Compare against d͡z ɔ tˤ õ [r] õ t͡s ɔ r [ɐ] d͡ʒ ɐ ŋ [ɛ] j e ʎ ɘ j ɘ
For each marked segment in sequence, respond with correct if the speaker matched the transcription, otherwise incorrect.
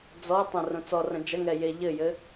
correct, incorrect, correct

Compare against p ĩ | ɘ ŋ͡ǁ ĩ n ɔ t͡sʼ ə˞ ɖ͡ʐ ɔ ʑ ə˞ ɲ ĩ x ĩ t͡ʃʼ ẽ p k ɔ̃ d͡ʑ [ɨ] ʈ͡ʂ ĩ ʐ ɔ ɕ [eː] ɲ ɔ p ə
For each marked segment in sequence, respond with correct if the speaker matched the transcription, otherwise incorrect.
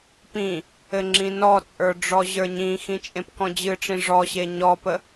correct, incorrect

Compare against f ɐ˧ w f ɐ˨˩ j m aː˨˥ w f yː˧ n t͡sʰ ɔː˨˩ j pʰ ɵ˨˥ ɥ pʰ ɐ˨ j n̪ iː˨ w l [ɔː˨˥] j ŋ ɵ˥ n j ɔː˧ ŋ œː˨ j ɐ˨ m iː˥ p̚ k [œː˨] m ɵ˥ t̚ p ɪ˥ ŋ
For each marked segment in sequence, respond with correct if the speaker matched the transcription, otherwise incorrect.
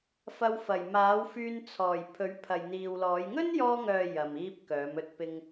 correct, incorrect

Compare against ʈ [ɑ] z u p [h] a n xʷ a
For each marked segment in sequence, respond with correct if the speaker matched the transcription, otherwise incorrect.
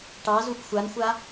correct, incorrect

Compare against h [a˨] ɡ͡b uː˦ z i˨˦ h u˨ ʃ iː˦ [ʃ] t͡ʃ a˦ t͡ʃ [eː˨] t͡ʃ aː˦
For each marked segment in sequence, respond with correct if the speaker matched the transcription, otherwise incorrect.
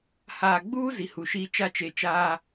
incorrect, incorrect, incorrect

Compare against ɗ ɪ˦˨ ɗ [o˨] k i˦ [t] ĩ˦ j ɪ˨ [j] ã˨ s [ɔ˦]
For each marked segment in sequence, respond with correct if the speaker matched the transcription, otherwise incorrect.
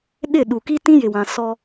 incorrect, correct, incorrect, correct

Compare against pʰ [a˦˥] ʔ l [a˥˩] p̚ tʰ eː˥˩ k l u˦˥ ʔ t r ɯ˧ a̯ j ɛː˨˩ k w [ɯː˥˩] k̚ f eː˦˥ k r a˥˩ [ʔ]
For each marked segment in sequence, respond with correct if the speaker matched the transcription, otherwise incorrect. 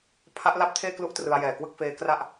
correct, correct, incorrect, correct

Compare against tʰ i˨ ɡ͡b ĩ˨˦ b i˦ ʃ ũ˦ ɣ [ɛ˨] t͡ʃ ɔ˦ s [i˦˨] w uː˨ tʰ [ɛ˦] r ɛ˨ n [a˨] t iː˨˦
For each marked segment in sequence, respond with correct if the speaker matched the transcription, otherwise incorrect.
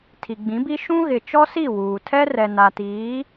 incorrect, correct, correct, correct

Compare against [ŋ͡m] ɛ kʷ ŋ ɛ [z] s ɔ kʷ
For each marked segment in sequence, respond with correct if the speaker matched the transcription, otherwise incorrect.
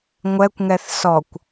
incorrect, incorrect

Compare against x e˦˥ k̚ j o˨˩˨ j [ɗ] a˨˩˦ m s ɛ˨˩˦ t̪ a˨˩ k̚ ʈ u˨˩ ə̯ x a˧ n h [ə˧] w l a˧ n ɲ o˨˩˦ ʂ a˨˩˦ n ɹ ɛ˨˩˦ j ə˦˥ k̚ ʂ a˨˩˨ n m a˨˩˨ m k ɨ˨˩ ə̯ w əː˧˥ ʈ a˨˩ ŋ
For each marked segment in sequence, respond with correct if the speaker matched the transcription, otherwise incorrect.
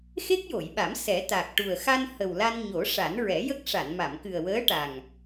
incorrect, incorrect

